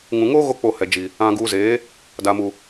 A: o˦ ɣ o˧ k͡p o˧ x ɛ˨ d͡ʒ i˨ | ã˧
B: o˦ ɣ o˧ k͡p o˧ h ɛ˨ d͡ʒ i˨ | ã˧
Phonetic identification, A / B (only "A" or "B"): B